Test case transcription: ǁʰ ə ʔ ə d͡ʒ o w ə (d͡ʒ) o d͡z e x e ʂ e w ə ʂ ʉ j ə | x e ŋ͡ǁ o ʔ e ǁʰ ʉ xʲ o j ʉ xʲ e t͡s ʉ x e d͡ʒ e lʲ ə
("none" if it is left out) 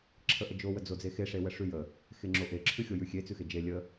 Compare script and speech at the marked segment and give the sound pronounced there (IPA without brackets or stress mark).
d͡z